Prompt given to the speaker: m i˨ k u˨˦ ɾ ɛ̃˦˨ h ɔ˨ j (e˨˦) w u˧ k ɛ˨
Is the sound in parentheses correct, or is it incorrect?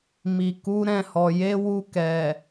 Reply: correct